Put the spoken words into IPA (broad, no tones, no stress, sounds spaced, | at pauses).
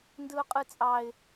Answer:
n d ɯ ʊ̯ qʼ ɯ t͡sʼ ɑ ɪ̯